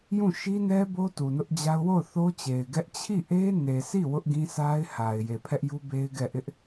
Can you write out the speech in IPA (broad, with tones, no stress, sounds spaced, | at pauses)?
j ũ˦˨ ʃ i˦ n ɛ˦ b o˦ t u˨ n ʊ˦ ʔ d͡ʑ a˦ ʊ̯ w o˦˨ ʊ̯ θ o˦ t͡ɕ e˨ ɪ̯ ɡ ɛ˦ ʔ t͡ɕʰ i˦˨ ʔ e˦ n e˨ s i˦˨ w ʊ˦ ʔ ɡ ĩ˦ s a˦ ɪ̯ h a˨ ɪ̯ j e˨ pʰ ɛ˦ ʔ j u˦ b e˦ ɪ̯ ɡ ɛ˦˨ ʔ ɪ˦ ʔ